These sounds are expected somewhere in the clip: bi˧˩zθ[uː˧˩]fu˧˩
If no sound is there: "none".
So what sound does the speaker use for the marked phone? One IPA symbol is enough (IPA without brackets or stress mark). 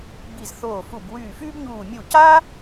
oː˧˩